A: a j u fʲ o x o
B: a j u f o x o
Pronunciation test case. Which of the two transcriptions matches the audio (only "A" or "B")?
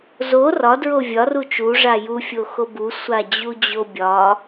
A